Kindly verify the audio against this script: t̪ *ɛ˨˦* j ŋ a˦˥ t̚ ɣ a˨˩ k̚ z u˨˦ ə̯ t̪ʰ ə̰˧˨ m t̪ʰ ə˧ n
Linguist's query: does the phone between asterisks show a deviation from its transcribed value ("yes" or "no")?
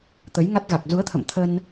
yes